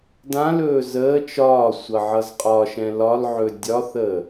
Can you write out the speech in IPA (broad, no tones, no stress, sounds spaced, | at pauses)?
d ã l ɵː z əː t͡ʃ ɒː sʷ ʌ ʕ ʌ z qʼ ɒ ʃ ɛ̃ l ɒ l ʕ ɵ dʲ ɒ θ əː